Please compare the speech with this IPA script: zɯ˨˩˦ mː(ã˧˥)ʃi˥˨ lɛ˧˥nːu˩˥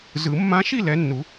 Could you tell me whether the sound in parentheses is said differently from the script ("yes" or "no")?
no